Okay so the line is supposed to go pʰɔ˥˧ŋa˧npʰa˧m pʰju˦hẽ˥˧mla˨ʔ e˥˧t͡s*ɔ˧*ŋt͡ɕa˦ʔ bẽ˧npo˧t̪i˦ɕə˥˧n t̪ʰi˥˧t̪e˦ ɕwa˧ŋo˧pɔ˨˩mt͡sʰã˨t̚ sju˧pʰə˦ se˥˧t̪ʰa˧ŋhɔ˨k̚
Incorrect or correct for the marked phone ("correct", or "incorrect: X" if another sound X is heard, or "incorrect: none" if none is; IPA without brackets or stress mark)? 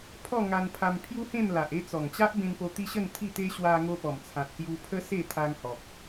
incorrect: ɔ˨˩